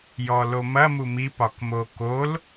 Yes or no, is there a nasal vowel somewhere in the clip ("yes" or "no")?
no